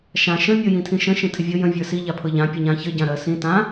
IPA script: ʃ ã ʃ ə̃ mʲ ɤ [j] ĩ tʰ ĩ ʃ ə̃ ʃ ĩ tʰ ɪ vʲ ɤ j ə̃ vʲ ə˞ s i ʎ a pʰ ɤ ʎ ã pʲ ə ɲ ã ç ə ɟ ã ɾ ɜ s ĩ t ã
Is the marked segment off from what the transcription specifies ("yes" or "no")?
no